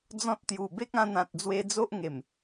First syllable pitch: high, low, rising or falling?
high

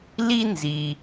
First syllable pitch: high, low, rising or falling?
high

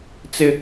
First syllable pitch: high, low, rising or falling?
high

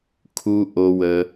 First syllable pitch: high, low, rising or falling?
low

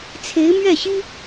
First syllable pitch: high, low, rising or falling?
rising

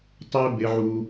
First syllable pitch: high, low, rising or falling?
high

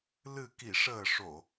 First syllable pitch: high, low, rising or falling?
low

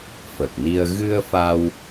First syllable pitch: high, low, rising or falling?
low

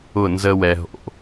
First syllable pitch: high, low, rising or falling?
falling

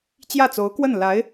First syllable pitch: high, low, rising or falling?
falling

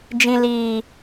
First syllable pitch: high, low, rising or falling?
low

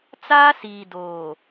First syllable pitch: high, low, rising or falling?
high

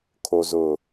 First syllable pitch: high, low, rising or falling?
low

